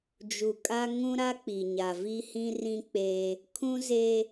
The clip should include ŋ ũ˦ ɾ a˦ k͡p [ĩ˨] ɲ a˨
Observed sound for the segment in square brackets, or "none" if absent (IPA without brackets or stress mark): i˨